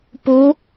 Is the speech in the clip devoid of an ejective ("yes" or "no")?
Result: yes